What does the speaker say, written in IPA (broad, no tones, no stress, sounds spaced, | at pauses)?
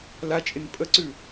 l a t͡ʃʼ ɪ n pʼ ə ǀ ʉ